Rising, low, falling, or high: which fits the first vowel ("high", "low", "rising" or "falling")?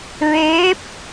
rising